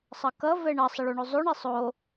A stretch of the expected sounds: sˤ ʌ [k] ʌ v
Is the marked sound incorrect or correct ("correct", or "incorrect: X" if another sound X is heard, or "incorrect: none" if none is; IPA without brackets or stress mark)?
correct